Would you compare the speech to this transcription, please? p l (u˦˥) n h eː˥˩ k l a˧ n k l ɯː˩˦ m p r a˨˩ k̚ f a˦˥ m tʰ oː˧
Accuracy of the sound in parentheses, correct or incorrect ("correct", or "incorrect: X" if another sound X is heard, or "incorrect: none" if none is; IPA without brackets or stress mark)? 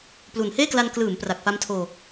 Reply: incorrect: u˨˩